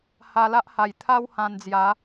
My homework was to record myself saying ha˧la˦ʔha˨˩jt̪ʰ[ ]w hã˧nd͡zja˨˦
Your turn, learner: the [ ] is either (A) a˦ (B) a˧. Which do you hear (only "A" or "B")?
A